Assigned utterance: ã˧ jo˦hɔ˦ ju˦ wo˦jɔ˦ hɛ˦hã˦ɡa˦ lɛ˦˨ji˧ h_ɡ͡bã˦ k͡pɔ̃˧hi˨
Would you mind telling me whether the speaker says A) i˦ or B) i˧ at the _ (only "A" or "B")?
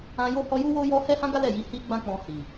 A